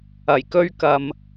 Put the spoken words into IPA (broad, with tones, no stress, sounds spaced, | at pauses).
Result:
ɐ˨˩ j k ɵ˥ ɥ k ɐ˨ m